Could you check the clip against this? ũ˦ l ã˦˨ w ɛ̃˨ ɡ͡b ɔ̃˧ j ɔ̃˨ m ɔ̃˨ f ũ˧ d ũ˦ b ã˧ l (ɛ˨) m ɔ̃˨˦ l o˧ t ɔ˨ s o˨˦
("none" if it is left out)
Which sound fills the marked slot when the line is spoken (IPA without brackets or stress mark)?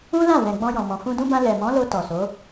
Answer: ɛ˨